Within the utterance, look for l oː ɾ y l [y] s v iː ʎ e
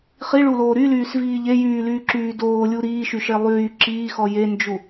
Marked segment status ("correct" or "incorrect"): incorrect